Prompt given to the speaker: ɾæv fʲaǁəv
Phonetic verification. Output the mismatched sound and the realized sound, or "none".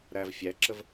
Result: a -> æ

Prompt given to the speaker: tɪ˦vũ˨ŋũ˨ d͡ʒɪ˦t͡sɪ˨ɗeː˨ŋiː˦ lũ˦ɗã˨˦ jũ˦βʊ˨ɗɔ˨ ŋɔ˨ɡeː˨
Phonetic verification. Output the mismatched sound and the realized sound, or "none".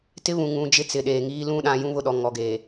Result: v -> β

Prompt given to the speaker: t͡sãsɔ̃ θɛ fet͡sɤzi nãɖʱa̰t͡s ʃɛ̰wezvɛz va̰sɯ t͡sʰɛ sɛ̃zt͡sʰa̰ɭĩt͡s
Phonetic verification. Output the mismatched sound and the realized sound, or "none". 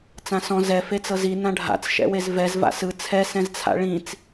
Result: θ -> z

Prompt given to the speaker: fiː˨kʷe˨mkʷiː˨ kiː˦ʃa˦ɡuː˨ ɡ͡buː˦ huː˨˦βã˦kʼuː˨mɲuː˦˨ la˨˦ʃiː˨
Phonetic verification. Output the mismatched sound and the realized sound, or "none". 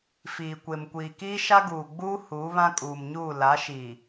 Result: none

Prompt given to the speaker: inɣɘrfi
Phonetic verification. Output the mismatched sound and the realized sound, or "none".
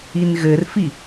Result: none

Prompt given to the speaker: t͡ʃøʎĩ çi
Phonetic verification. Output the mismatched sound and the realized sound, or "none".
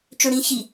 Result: ʎ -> ɽ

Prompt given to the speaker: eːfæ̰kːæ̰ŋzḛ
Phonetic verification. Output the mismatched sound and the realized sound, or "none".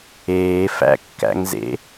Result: none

